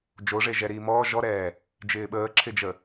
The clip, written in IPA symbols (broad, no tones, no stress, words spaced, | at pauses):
d͡ʒoʐe ʒɛɾiːmɔː ʒɔɾɛː | d͡ʒɪːɓəːǁʰɪd͡ʒə